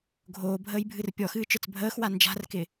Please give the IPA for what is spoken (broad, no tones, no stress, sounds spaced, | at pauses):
ɡʱ oː bʱ əː j bʱ ɨ r pʲ ɔ x ɨː t͡ʃ ə˞ t͡s bʱ əː x w a n d͡ʒ a̤ r k ɪ